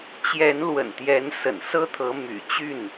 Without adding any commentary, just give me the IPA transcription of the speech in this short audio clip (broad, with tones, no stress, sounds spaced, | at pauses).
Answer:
t͡ɕ j ɛ˨˦ n l w ə̰˨˩ n t̪ j ɛ˨˦ n s ə̰˨˩ n s ɤ˦ t̪ʰ ɤ˨˦ m y̰˨˩ t͡ɕ y˥˨ n